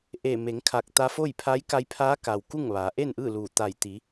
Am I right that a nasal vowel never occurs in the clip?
yes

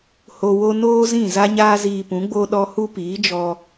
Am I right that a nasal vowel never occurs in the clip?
no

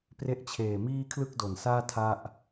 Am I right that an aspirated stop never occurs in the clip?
no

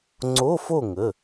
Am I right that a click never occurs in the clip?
no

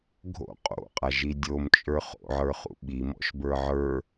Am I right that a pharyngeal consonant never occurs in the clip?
no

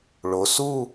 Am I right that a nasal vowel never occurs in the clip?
yes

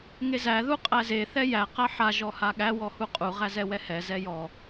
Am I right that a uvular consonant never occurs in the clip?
no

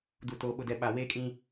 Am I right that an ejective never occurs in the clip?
no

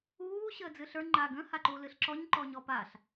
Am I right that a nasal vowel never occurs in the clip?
no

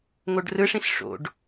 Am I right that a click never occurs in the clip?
yes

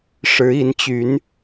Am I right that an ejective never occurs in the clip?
yes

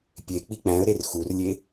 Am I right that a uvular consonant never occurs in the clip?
yes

